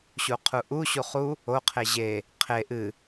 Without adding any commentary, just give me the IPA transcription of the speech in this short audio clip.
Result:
ɕuqʰuʔu ɕuχu | o qʰeʑe | qʰe ʔɨ

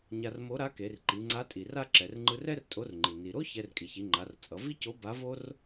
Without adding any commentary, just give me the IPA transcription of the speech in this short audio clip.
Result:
ɲa˧rmo˧˥ɾa˧˥ke˩˧r ǃi˩˧ŋ͡ǀa˧˥tʼi˩ra˥ ǁɛ˩rŋ͡ǃɯ˧rɛ˥r tʼo˧˥rŋ͡ǃi˩ ni˩ɾo˥ çɛ˧rkʼi˩çi˩˧ŋ͡ǃa˩˧r t͡sʼʌ˩˧ vi˥co˧˥ ba˧˥vo˥r

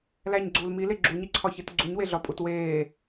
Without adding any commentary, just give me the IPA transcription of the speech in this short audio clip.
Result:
læɲɡ͡ǀuːl mile ɡ͡ǁuɲiǀʰɒçit ɡ͡ǀuɲweɮɒpʼut weː

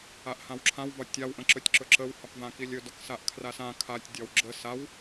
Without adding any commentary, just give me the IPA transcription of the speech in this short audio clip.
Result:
aʔhãwǁʰãw vɒtʲaw ʔə̃ǁɵtʲǁɵǁəw hɒkvãkilʲɵ dɒksaʔkʰrasã kʰatʲ dʲɒwɡ͡ǁə saw

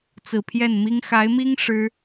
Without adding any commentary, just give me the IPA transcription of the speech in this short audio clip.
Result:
t͡sɹ̩˨˩pʰjɛ˥˩nmi˥ŋ xa˧˥ɪ̯mi˥ŋ ʂɻ̩˥

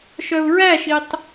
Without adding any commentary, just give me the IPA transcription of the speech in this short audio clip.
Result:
ʃœu̯ɹæʃitˤ

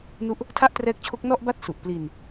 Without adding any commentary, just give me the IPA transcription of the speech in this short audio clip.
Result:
nu˥˩ʔ | tʰa˥˩ʔtrɛː˦˥k̚t͡ɕʰo˦˥k̚ nɔ˥˩ʔba˥˩t̚ su˨˩ʔ pli˧n

